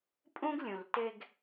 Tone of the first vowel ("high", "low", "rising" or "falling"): high